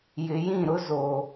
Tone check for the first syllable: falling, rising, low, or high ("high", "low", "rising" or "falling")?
low